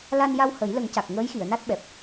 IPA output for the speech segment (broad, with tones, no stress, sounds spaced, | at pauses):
l a˧ n j a˧ w h ə˨˩˦ j l ə˨˩˦ ŋ c a˨˩ k̚ ŋ əː˧˥ j x i˨˩˨ ə̯ n a˦˥ t̚ ɓ ɛ˨˩ p̚